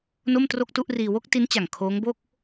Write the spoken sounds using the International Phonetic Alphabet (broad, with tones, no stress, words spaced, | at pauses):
no˥˩mtro˥˩k̚tu˥˩ʔriː˧ wo˥˩k̚ti˦˥n t͡ɕa˨˩ŋkʰoː˦˥ŋbo˥˩k̚